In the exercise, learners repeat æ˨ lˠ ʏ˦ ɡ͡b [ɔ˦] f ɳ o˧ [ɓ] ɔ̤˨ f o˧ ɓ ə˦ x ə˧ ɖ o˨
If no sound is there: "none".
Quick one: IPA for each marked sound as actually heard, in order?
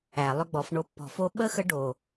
ɔ˨˦, pː

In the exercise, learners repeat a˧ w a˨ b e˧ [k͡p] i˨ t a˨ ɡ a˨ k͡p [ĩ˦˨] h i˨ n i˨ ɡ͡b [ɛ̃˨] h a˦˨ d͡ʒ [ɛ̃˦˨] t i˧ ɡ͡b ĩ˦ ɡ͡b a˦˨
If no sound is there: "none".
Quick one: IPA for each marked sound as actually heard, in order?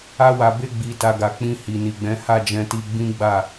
ɡ͡b, ĩ˧, ɛ̃˨˦, ɛ̃˧

